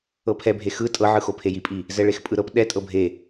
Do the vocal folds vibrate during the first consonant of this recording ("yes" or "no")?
no